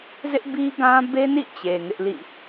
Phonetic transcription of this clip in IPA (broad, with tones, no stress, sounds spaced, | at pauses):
z ɪ˦ ʔ b i˦ ɡ ã˦ b e˦ n ḭ˦˨ t͡ɕ e˨ ŋ ɪ˦ ʔ l ḭ˦˨